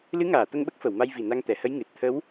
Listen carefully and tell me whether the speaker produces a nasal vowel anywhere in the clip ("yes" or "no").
no